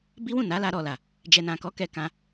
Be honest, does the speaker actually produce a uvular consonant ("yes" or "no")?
no